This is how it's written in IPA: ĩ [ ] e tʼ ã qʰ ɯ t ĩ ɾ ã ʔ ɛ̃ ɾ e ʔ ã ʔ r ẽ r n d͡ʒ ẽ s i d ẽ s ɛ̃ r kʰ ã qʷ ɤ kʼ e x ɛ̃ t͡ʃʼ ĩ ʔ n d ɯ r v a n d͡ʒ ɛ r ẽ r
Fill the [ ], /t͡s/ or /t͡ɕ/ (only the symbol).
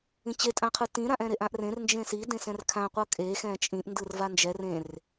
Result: t͡ɕ